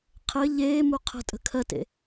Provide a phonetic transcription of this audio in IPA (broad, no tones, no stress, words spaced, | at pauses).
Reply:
qʰɘ ʎeːmu qʰə̤tʼə̤ kʰɜtḛ